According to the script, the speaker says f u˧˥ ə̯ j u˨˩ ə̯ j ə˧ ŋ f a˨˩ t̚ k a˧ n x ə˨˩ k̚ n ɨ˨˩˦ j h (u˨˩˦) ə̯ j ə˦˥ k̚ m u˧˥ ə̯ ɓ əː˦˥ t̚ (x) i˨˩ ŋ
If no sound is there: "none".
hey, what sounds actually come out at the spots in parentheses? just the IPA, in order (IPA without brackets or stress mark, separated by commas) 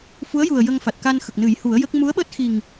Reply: u˨˩˦, x